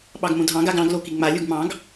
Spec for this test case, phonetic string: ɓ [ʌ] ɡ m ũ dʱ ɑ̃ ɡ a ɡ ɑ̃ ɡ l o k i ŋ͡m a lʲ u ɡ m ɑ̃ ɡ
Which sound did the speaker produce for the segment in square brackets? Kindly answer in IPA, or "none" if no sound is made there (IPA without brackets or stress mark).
ɑ